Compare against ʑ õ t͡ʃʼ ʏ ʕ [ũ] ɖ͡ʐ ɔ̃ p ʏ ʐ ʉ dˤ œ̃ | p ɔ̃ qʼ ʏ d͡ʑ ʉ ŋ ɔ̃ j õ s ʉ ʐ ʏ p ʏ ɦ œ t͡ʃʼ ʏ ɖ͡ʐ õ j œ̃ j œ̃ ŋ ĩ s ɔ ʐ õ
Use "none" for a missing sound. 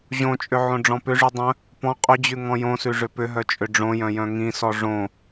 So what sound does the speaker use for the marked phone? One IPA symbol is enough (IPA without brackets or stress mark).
õ